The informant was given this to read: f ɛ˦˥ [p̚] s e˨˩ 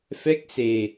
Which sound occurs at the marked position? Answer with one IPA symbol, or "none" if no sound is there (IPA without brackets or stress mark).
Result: k̚